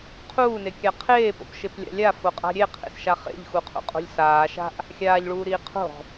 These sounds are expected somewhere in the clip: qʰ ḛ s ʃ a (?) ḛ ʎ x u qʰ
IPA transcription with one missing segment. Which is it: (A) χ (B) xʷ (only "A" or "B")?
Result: A